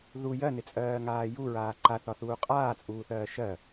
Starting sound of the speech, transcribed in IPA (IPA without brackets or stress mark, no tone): ð